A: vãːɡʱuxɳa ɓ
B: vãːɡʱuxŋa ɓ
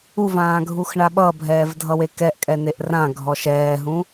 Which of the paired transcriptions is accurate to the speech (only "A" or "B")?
A